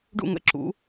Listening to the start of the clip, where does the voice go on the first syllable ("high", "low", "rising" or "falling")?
falling